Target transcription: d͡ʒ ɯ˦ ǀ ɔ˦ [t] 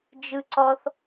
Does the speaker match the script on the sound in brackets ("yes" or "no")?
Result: no